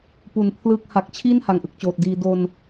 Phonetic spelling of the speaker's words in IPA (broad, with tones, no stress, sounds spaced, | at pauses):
p u˩˦ n pʰ l ɯː˦˥ k̚ h a˨˩ k̚ t͡ɕʰ i˥˩ n h a˩˦ ŋ ʔ ɯ˨˩ k̚ t͡ɕ oː˨˩ t̚ d iː˧ d o˧ n